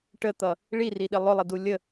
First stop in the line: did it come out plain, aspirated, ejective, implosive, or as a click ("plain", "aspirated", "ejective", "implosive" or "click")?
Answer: plain